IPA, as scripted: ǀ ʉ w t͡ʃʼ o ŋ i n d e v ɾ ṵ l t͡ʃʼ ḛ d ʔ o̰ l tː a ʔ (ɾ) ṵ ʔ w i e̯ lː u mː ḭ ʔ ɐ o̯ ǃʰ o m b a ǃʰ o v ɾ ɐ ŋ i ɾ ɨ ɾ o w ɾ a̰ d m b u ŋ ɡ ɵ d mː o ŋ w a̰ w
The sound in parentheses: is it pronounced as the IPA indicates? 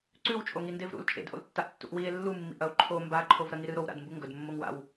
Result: no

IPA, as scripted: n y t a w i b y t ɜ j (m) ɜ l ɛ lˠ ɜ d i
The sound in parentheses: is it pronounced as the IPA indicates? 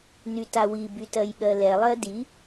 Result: no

